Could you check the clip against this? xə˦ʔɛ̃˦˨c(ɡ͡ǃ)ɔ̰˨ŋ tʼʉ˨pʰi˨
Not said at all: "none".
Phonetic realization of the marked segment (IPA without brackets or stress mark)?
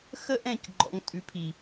ɡ͡ǃ